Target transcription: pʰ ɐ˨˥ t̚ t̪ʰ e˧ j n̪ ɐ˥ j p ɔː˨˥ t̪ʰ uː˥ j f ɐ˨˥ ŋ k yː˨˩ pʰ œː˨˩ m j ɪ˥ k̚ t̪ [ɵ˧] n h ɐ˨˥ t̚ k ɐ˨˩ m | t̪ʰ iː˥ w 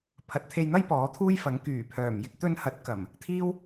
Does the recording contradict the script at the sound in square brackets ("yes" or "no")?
no